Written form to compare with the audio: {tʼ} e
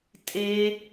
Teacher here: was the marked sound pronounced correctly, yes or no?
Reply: yes